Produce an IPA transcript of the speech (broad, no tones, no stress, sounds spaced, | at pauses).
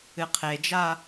ɨ qʰ e d͡ʒ a